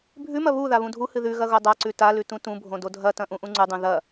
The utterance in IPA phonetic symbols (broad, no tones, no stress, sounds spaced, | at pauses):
bʱ ʉ m ɐ β u ð a β ũ dʱ u h ɨ ð ʉ ɣ ɐ ɣ o dˤ a ǀ ʉ t a l ʉ t ũ t ũ bʱ õ d o dʱ ɐ t ɐ̃ ʔ ũ ʔ ũ ŋ͡ǀ ʉ dˤ ũ ð ɐ